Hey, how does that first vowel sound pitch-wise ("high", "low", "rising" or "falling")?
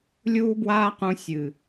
high